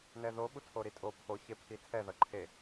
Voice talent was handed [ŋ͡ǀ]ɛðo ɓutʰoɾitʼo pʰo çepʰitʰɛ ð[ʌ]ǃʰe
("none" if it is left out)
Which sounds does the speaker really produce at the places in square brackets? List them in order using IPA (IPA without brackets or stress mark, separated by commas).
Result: n, ʌ